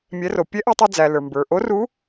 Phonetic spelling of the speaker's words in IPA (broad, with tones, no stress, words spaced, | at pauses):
mʲɛ˩˧ro˩ pʲɛ˧˥ʔæ˧tˤɛ˧ d͡zæ˩ lə˞˩mbə˞˩ʔo˧˥ ru˧˥